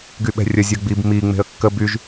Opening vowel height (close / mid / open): close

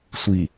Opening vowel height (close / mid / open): close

